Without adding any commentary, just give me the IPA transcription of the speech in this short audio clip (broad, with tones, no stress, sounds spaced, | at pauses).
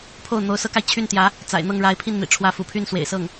pʰ o˥˩ ʊ̯ n̪ o˧˥ ʊ̯ s ɤ˥ k a˨ ɪ̯ t͡ɕʰ y˥˩ n t̪ j ä˧˥ | t͡s a̰˨˩ ɪ̯ n̪ ɤ˥˩ ŋ ɻ a˧˥ ɪ̯ pʰ i˥˩ n n̪ ḭ˨˩ ʈ͡ʂʰ w ä˧˥ f ṵ˨˩ pʰ y˥˩ n s w ḛ˨˩ ɪ̯ s ɤ˥˩ ŋ